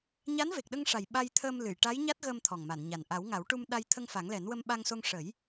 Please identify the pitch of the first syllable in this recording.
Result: rising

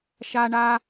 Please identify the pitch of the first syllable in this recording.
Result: high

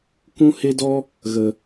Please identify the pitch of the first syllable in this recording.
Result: high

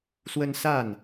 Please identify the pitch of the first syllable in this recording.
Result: high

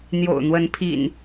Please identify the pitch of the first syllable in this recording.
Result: low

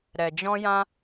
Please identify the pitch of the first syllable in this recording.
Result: low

